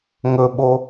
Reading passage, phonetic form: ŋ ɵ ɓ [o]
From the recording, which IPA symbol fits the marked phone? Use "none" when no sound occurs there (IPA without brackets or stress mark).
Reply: o